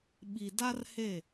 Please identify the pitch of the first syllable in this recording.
low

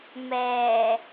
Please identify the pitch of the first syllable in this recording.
low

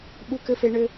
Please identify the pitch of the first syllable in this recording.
high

